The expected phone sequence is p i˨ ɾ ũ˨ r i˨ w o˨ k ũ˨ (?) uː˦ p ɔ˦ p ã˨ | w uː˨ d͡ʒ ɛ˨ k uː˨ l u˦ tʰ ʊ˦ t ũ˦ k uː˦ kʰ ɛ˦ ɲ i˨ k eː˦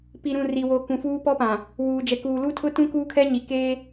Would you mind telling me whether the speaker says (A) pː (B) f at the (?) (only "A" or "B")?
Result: B